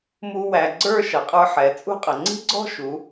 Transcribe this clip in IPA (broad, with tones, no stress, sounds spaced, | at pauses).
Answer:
m u˧ w æ˩˧ ɡ͡ǀ ə˞˥˧ ʃ ʌ˩˧ qʼ ə˞˧ ħ ɛ˩˧ t͡sʼ ṳ˥˧ qʼ ə˩˧ ŋ͡ǀ i̤˥ ɡ͡ǀ ɔ̤˥˧ ʃ u˩˧